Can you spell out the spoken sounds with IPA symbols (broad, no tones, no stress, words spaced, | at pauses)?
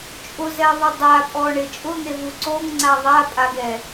t͡ʃʼʊzɛðˤʊ dˤapʼɔɳɪ t͡ʃʼʊn̪evu ǀoŋŋ͡ǀa ðˤapʼaɡɛ